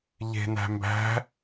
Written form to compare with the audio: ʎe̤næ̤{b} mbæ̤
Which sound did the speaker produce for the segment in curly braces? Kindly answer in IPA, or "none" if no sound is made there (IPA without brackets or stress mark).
none